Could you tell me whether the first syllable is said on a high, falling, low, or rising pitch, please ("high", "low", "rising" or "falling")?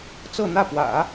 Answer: falling